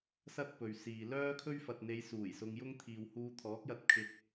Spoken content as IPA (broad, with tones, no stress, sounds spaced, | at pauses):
s ɐ˥ t̚ p ɵ˨ ɥ s iː˨ l œː˥ kʰ ɵ˥ ɥ f ɐ˨ t̚ n̪ e˨˧ j s uː˨˩ j s ʊ˧ ŋ j ʊ˥ ŋ t̪ʰ iː˨ w h uː˧ t̪ʰ ɔː˨˥ k̚ j ɐ˧ t̚ kʰ ɪ˧ k̚